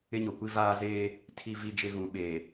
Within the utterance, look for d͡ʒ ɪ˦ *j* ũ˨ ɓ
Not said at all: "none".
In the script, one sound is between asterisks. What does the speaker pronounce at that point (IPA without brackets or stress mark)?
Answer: ɣ